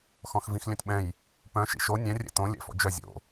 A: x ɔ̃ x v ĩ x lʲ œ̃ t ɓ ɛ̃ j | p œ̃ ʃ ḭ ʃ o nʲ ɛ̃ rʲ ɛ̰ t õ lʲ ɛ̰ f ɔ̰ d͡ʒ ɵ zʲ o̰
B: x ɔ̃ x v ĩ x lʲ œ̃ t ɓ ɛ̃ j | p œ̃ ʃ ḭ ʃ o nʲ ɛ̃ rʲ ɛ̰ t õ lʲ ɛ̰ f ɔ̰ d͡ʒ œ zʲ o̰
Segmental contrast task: B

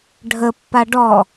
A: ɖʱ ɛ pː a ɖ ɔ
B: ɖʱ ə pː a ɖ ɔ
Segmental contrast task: B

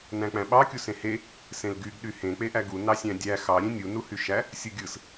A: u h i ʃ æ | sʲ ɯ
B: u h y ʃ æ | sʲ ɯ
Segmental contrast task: B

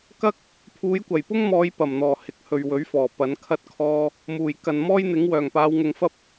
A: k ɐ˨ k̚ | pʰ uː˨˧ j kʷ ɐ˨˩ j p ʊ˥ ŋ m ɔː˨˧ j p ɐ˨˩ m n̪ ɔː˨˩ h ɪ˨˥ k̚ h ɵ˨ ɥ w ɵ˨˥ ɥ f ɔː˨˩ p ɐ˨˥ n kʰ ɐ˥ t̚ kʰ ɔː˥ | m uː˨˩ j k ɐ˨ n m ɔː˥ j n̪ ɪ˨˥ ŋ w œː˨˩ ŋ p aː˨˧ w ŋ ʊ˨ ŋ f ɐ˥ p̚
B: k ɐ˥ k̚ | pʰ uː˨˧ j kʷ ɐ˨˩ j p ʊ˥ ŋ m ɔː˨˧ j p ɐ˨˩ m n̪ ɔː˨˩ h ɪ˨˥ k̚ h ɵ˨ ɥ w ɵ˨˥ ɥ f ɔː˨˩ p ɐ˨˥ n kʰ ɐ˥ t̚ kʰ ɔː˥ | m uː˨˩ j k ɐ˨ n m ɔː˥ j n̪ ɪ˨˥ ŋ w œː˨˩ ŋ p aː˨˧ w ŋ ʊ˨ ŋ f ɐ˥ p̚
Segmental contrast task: B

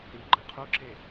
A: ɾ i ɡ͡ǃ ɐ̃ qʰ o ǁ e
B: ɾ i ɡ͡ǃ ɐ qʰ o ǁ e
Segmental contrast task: A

